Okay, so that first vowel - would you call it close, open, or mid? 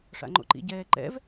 open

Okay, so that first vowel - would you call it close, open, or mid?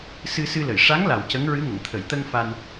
close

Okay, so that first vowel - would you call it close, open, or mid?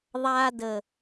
open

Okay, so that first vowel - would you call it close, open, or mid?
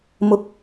close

